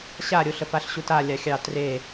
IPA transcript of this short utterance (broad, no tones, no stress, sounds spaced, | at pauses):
ɕ a ɾʲ o ɬ ə f a ɬ ɕ u t a lʲ a xʲ ɑ t r e